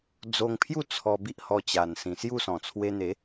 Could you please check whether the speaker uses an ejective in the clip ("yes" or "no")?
no